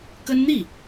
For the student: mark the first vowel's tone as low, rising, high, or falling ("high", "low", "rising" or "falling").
high